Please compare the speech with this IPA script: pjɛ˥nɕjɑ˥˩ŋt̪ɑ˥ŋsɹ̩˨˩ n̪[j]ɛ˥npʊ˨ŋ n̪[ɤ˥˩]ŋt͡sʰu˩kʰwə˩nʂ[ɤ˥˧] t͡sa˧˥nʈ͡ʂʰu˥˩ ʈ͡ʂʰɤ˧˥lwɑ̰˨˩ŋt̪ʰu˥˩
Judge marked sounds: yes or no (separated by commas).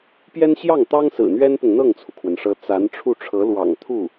no, yes, no